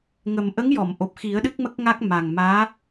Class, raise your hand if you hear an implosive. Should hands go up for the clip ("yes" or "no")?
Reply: yes